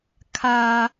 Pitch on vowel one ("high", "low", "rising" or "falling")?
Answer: high